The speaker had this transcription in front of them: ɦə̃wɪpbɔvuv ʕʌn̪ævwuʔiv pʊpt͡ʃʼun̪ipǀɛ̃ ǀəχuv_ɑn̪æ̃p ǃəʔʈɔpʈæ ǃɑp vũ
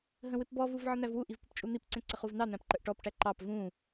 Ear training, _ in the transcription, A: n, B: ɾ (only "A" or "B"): A